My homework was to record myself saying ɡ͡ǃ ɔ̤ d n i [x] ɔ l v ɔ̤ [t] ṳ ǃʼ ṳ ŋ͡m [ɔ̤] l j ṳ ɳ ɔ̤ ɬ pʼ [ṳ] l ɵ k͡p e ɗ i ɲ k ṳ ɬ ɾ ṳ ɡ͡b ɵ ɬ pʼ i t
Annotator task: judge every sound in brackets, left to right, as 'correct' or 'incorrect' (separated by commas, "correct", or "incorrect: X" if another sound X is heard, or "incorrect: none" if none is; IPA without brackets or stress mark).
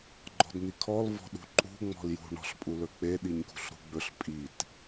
incorrect: kʰ, incorrect: ɗ, correct, incorrect: u